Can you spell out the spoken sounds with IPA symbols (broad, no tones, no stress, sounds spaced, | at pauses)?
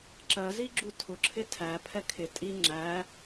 ǁ ɜ z i ɡ͡ǁ u tʰ ʊ ǁʰ ɪ tʰ æ pʰ ɛ kʰ ɪ tʼ i ŋ͡ǁ æ